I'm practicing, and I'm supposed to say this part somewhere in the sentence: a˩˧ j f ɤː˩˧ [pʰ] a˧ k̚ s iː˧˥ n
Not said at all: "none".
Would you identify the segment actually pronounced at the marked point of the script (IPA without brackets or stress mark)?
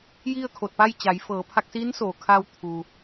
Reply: pʰ